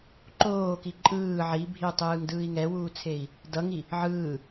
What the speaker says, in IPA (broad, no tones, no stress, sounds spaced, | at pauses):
ǃ oː k i ǃʼ ɯː ʕ i bʱ i u̯ tˤ ɯː ŋ d ɯː i̯ ŋ ɛ w uː t͡sʰ e i̯ | d ʌ ŋ i | ʕ ɯː